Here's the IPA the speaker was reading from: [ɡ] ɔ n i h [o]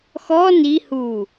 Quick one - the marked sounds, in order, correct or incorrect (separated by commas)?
incorrect, incorrect